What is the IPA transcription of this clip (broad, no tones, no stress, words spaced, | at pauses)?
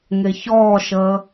ŋeçɔːʃəː